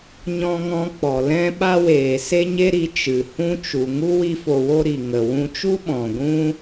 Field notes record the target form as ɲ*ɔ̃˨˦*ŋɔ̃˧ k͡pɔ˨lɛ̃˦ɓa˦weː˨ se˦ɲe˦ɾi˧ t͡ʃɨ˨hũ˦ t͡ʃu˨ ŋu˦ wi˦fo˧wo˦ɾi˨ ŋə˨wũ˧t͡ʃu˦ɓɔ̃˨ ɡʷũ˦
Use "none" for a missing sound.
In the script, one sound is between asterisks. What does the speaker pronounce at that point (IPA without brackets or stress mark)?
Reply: ɔ̃˧